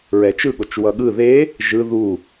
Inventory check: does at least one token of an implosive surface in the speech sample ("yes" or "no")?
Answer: yes